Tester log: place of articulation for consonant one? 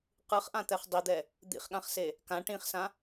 uvular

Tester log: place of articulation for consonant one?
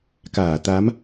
velar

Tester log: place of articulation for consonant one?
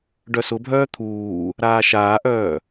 retroflex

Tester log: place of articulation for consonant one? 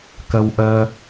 velar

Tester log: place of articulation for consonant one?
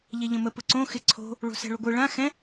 palatal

